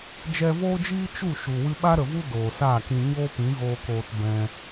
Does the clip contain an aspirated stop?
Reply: no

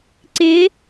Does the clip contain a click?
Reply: yes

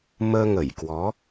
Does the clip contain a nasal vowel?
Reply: no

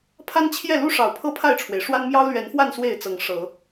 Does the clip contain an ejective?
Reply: no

